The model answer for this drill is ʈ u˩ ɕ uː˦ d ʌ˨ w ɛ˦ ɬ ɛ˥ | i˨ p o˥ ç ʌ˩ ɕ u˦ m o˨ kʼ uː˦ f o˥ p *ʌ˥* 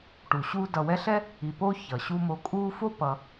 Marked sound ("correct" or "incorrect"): incorrect